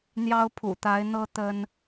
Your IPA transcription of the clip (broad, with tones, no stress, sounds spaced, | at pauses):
n̪ j ɑ˦ ʊ̯ pʰ ṵ˨˩ t̪ a˨˦ ɪ̯ n̪ ɤ˦ t̪ ə˦ n